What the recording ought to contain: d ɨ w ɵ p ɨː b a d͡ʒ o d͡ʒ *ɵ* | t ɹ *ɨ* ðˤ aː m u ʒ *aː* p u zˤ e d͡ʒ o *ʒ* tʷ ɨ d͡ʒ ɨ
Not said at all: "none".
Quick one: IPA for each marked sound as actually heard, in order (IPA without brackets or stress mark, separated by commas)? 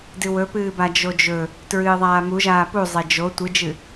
ɵ, ɨː, aː, none